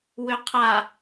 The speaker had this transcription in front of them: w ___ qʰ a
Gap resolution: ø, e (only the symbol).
ø